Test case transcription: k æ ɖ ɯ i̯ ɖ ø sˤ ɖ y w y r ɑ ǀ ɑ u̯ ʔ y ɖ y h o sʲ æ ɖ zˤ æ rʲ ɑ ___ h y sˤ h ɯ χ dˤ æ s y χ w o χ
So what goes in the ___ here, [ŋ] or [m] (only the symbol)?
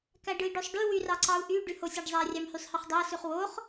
m